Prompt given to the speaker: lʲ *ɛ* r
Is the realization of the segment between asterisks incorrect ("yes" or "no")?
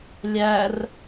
yes